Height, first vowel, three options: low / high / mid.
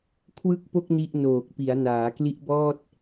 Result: high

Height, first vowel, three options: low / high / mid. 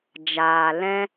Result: low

